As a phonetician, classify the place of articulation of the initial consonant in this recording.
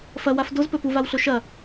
labial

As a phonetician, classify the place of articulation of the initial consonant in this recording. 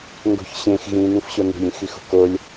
velar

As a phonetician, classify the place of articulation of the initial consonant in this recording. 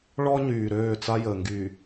retroflex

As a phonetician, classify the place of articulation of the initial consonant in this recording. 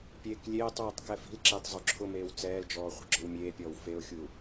labial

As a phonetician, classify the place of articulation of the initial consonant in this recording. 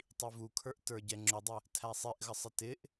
alveolar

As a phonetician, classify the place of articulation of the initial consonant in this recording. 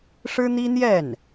retroflex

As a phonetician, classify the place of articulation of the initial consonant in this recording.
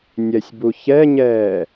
alveolar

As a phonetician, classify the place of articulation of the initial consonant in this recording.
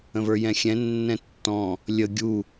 labial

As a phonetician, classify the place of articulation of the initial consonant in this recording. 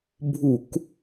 labial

